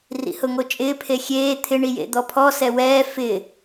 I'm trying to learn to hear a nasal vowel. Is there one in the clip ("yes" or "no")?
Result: no